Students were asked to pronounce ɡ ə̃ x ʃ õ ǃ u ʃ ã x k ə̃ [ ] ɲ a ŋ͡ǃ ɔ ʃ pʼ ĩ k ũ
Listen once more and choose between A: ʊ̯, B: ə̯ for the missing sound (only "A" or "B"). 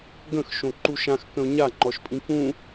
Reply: A